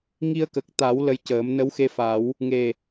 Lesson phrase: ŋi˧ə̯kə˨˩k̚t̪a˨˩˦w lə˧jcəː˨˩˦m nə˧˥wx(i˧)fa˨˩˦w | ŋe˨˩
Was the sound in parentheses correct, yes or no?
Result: no